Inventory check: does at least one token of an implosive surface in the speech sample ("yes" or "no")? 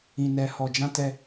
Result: no